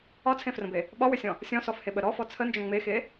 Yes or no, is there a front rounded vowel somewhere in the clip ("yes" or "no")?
yes